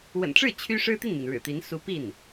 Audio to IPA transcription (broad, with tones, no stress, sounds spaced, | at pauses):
w ə̰˨˩ n ʈ͡ʂ ɻ̩˥˩ t͡ɕʰ y˥ ʂ ɻ̩˥ t̪ i˥˩ n m i˩ n ɻ ɻ̩˨˩ t̪ i˧˥ n s u˧˥ p i˥˩ n